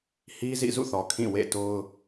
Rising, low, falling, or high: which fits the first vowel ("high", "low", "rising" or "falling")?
high